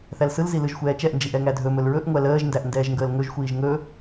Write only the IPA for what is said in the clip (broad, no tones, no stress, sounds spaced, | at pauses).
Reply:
θ æ l s ɯ l z i l ɯ ʒ xʷ ɛː t͡ʃ ɛ ʔ n d͡ʒ i ʔ ɛ ŋ æ dʱ ɵ m ɵ l ɹ ɵ ʔ ŋʷ æ l əː ʒ n d æ ʔ n d ɛː ʒ ŋ ɡ əː l ŋ ɵ ʒ xʷ iː ʒ ŋ ɵ